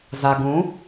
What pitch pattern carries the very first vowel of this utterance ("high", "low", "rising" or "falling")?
low